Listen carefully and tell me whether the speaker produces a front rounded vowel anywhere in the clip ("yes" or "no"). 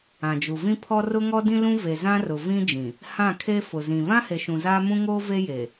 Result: no